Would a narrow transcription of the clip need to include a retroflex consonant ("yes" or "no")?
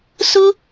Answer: no